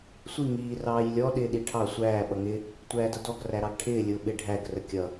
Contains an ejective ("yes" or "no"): no